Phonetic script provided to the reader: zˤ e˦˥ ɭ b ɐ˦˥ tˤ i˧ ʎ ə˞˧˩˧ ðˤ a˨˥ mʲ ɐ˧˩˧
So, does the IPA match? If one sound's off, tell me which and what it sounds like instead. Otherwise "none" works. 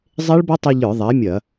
none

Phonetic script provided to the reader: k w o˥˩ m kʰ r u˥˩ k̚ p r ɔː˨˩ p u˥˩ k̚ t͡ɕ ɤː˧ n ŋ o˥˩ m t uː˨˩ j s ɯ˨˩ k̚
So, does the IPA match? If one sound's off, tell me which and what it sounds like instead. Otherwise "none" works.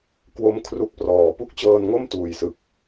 none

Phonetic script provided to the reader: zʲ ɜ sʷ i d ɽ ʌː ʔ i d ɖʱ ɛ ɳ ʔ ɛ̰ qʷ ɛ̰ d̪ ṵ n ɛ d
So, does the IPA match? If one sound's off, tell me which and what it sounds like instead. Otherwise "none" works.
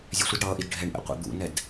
ɜ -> ɛ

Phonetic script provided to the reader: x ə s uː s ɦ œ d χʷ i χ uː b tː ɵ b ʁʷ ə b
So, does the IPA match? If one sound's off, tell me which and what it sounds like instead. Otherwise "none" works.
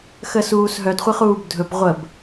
tː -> dʱ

